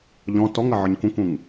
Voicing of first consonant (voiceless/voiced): voiced